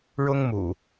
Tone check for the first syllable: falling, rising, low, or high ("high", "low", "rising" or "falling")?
high